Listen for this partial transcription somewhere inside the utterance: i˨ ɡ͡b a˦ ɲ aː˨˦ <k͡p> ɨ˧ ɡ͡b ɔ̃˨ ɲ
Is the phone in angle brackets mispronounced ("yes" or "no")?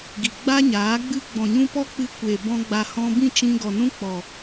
yes